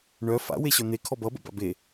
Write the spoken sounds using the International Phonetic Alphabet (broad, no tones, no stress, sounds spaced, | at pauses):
ɳ œ f a̰ w e ɕ œ n̪ e kʰ ɔ b ʌ b ə̰ b a̰ b e